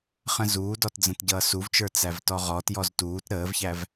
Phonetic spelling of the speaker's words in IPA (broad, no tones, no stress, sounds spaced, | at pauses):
χ ə̃ z uː d ɔ t d͡z ə̃ t ɟ ʌː s u v t͡ʃ ə˞ t͡s æ v t ɔ ʁ ɔ t j ɔ z t uː t ɾ əː v ç æ v